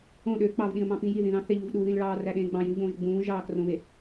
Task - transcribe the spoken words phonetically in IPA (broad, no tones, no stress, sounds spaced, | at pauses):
õ ɗ ø k͡p ɑ v ɗ ĩ ə̯ m ɑ̃ p ĩ j i ð ĩ ð ɑ̃ θ e ʎ u v ɗ u ð ĩ l ɭ ɑː r æ ɗ ẽː ɡ͡b ɑ̃ j ĩ v ʎ õː ʒ ɡ͡b ũː ʒ ɑː k r õ β e